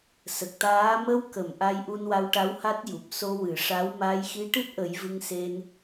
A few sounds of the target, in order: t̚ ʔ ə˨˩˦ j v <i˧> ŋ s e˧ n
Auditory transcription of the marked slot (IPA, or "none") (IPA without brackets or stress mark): ɨ˧